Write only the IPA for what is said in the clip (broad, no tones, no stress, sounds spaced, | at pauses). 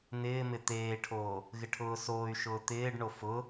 n ɪː m ɪ t̪ eː ʈʰ oː | ɣ ɪ ʈʰ ʊː s oː y̯ ʃ ʊː t̪ ɪː ɖ ɳ o f ʊ